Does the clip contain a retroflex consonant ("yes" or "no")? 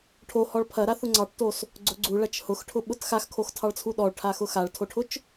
yes